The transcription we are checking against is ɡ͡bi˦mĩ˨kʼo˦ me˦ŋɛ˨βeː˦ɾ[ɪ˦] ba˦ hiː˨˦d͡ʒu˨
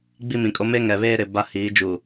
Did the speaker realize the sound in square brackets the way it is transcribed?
no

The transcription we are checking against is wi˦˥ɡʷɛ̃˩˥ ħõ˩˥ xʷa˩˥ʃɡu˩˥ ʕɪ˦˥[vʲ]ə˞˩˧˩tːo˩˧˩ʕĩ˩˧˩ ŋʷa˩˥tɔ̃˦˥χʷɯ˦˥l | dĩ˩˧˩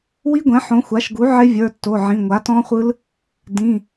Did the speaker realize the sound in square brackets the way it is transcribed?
yes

